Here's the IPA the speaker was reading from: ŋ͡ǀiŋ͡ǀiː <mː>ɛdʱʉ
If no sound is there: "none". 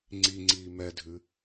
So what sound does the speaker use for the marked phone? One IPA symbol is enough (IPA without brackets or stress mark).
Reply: m